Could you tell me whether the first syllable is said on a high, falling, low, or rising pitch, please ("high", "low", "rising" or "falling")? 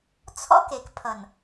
high